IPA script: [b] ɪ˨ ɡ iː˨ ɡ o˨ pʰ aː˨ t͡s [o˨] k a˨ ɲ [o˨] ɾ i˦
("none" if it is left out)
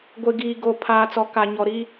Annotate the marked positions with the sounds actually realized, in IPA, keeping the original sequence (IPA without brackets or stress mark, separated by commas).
ɡʷ, ɔ˨, ɔ˨